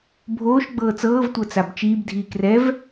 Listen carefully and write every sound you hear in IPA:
bʱoːʃ ɡ͡bɤːt͡sɤːv tʷɤt͡sabt͡ʃiːb dʱiːkrɛv

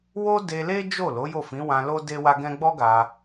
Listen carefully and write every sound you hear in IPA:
wo˦de˧le˦ d͡ʒo˦˨lo˨˦ jo˦˨fĩ˨˦wã˧lo˦ de˦wa˦ɡɛ̃˦ ɡ͡bɔ˦ ɡa˧

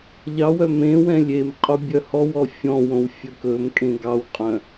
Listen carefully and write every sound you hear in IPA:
ʎɑwœ mẽwɛ̃ lʲem qʼobʲœhɔwɔ fʲɔ̃wõw fʲɵkɵmkʼẽ ɡɑwqʼœ̃

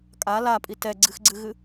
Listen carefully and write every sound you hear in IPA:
kʼa lapʼi tɛɡ͡ǀɨxɡ͡ǀɨɣɨ

